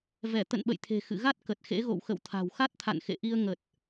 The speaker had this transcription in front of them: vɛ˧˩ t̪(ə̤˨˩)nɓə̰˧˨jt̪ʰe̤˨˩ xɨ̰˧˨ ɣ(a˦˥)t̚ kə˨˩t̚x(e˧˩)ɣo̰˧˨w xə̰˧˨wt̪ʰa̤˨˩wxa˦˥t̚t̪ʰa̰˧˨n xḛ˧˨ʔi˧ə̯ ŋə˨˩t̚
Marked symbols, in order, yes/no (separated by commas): no, yes, no